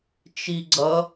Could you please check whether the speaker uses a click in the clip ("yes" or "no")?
yes